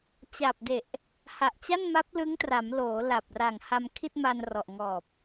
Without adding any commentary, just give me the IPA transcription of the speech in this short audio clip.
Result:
t͡ɕ a˨˩ p̚ d e˨˩ ʔ | h a˨˩ ʔ t͡ɕ a˥˩ n m a˦˥ p̚ l ɯ˦˥ ŋ t r a˩˦ m l oː˩˦ l a˨˩ p̚ r a˨˩ ŋ h a˧ m kʰ i˥˩ t̚ m a˧ n r ɔ˨˩ ʔ ŋ ɔː˨˩ p̚

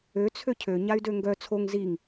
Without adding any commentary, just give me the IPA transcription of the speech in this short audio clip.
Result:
ø t͡sʰ ø cʰ ø ɲ a y̯ d ø ŋ ɡ œ t͡sʰ o ŋ z i ŋ

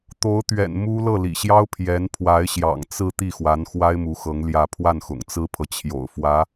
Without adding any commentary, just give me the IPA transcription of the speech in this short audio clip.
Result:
t̪ o˧˥ ʊ̯ t̪ ɥ ɛ̰˨˩ n m u˥ l ɤ˥˩ l ḭ˨˩ ɕ j ɑ˥ ʊ̯ pʰ j ɛ˧˥ n pʰ w a˧˥ ɪ̯ ɕ j ɑ̰˨˩ ŋ t͡s ɹ̩˥˧ t̪ i˥˩ x w a˧˥ n x w a˥ ɪ̯ m u˧˥ x ɤ˧˥ ŋ l j ä˥˧ pʰ w a˥˩ n x ʊ̰˨˩ ŋ t͡s ɹ̩˥ pʰ ɤ˨ t͡ɕʰ j o̰˨˩ ʊ̯ f w ä˧˥

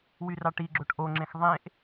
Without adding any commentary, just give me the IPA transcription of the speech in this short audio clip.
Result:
w y r ɑ ʈ i ɡ͡ǁ o ʈ ʔ o ŋ͡ǁ ẽ x ðˤ ẽ ʔ

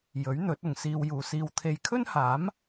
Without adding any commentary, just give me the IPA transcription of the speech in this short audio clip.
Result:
j ɵ˨˥ ɥ n̪ ɵ˨˥ t̚ ʊ˨ ŋ s iː˧ w j uː˨ s iː˧ w t̪ʰ e˧ j kʰ ɵ˥ n h aː˨˥ m

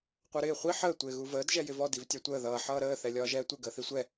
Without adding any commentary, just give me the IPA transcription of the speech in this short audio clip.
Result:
qʷ ɜ ɾ ɪː χʷ i ħ əː tʷ ɪː ɣ u v əː d ʒ ɛ j ɪ v ɔ d i v tʲ ɑ tʷ əː ð ʌː ħ ʌː ɾ əː θ ɛ lʲ ɒː ʒ ɛː tʷ ɪ ɡ əː θ i sʷ ɛ

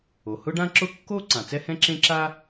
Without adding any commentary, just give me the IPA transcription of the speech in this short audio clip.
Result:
o˩ h ʊ˥ ɖ ã˥ ǁ ʊ˥ kː o˥ ǀ ã˩ t͡s ɛ˥ h ɛ̃˥ ǁ ẽ˥ ǁ a˥

